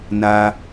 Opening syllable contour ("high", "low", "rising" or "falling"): high